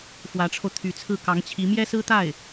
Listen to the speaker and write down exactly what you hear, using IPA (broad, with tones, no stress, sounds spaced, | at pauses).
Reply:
f w ä˧˥ ʈ͡ʂʰ o˧ ʊ̯ t̪ʰ y˧˥ t͡sʰ ɹ̩˥˩ k ɑ˧˥ ŋ t͡ɕʰ i˧˥ m j ɛ˥ s ɹ̩˥ t̪ a˥˩ ɪ̯